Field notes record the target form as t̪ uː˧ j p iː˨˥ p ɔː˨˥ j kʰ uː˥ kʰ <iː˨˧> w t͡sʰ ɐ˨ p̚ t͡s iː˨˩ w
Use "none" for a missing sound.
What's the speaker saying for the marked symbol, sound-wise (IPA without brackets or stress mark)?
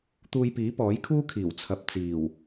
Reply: iː˨˩